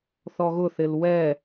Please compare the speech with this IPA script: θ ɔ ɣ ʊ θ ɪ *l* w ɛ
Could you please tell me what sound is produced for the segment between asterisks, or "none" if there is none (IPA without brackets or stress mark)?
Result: l